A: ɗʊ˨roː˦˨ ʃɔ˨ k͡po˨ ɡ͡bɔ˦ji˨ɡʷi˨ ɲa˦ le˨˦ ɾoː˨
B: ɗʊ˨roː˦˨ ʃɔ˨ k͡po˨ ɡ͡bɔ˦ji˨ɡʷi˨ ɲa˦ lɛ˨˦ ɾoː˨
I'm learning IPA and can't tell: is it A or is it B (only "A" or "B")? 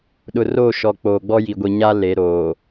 A